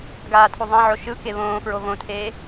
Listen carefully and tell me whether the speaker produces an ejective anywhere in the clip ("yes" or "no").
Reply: no